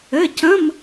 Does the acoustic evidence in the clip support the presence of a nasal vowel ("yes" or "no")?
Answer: yes